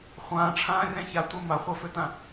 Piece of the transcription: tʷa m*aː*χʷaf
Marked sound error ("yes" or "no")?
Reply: yes